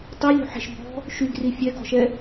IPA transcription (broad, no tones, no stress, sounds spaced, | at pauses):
tˤ i lʲ ṳ ħ e̤ ʃ b ɔ̤ | ʃ y ɡ r i fʲ ɛ ɡ ɔ̤ ʃ ɛ